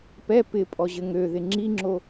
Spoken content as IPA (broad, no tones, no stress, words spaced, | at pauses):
pɛ pɪ pʼɔʑɘŋøðɪ ŋ͡ǁiŋ͡ǁo